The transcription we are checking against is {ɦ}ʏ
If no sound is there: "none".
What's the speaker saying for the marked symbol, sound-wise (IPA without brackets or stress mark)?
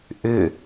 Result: ʔ